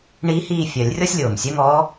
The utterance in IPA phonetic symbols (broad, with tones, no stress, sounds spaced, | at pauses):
ɳ iː˧˥ h iː˦˨ fʲ œ˨˩˦ lʲ rʲ ɔ˥ sʲ lʲ oː˩ m sʲ œ˥ ŋ ɔː˧˥